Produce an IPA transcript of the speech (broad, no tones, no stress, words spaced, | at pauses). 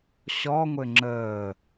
ɕɔŋʷɘ ŋ͡ǁəː